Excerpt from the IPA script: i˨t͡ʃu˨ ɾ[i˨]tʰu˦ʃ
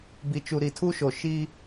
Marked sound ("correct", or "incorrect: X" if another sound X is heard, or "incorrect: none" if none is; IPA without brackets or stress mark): correct